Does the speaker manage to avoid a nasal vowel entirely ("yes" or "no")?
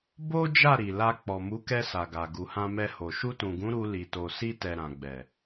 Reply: no